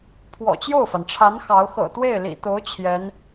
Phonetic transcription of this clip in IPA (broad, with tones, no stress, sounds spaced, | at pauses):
pʰ w ɔ̰˨˩ t͡ɕ j o˥˩ ʊ̯ f a˩ n ʈ͡ʂʰ a˧˥ n x ɑ˧˥ ʊ̯ x ɤ̰˨˩ t̪ w e˥˩ ɪ̯ l ḭ˨˩ t̪ o˧˥ ʊ̯ t͡ɕʰ j ɛ˧˥ n